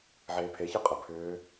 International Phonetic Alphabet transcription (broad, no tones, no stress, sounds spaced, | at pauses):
ʕ eː pʰ e ç ɯ qʼ ə pʰ ʏː